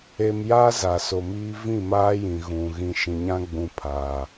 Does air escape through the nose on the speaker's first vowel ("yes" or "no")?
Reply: no